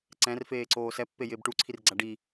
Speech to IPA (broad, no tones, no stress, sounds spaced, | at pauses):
ǀ ɛ̃ r f eː ǀ oː s ɛ pː e j ɪː b ʈ u ǀʰ i r ɡ͡ǀ a ɖ i